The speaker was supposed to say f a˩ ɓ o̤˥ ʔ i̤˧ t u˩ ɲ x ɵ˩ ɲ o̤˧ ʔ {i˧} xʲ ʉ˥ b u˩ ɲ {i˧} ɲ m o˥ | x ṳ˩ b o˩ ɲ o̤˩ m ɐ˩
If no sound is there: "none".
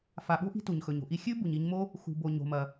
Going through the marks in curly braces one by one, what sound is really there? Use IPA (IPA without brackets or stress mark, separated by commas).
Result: i˧, i˧